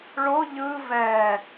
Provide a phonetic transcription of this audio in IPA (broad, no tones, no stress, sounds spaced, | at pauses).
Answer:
ɭ o ʎ ɯ v ɛ